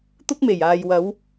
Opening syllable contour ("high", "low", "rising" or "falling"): high